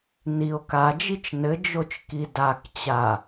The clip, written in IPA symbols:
n i o̯ k a d͡ʒ i t͡ʃ n ɘ d͡ʒ o t͡ʃ k i d a k t͡ɕ a

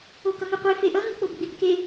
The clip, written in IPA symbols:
o k ʌ ŋ ɯ qʷ e f e ʔ ʌ ŋ ɯ k͡p o b ɡ͡b i b k e

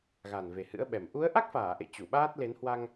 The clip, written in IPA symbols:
ɣ a˨˩ n v e˨˩ h ɨ̰˧˥ ə̯ ɓ ɛ˨˩ m ʔ u˨˦ ə̯ ʔ a˦˥ k̚ f aː˧˩ ʔ ḛ˧˨ t͡ɕ u˧˩ ɓ aː˦˥ t̚ l e˨˦ n h w a˧ ŋ

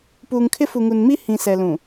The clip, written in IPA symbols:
p uː˨ ŋ kʰ ɪ˦ f u˨ ŋ u˨ n m i˦ h ĩ˨ s ɛ˨ l ũ˨

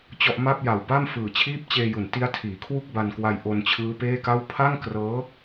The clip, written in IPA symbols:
t͡ɕ ɔ˥˩ ʔ m a˥˩ p̚ j a˨˩ w b a˥˩ m f ɯː˨˩ t͡ɕʰ iː˥˩ p̚ t͡ɕ eː˧ j u˩˦ n t i˦˥ a̯ tʰ iː˩˦ kʰ w u˥˩ k̚ b a˧ n k w a˧ j ʔ o˧ n t͡ɕʰ ɯː˦˥ p eː˥˩ k a˥˩ w pʰ a˥˩ ŋ k r ɤː˦˥

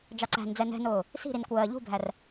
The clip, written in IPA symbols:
d͡ʒ ɑ ǀ æ̤ n d͡z ɛ n ɛ̤ n ʊː | s i̤ ɾ i n kʷ ɜː ʎ ṳ bʱ æ r

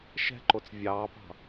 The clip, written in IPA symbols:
ʃ ɛ̤ ǃ o t͡s vʲ ɑː p ɑ̤

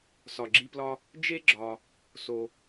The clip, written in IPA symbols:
s ɒ˩ ɡ͡ǁ i˧ p l ɒ˧ | d͡ʒ e˥ ɡ͡ǁ ɒ˩ | s o˩

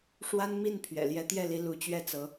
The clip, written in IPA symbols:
ʂ w a˥ n m i˥˩ n pʰ ɥ ɛ̰˨˩ l j ɛ˧˥ t̪ j ɛ˥˩ l i˧˥ l u˧˥ t͡ɕ ɥ ɛ˥˩ t͡s ɤ˧˥

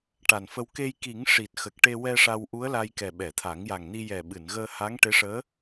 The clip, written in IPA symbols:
ʈ a˨˩ n f ə˧ w k e˧ j k i˨˩˦ ŋ ʂ i˨˩ t̚ x ə˨˩ k̚ ʈ e˧ w ɛ˧ ʂ a˧ w ʔ u˧˥ ə̯ l a˧ j k ɛ˨˩ ɓ ɛ˨˩˨ t̪ʰ a˨˩˦ ŋ j a˨˩ ŋ n i˧ j ɛ˨˩ ɓ ɨ˨˩˨ n ɣ əː˧ h a˧˥ ŋ ʈ e˧˥ ʂ əː˧˥

